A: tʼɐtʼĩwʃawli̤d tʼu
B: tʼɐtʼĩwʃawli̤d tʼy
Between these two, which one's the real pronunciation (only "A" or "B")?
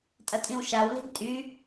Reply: B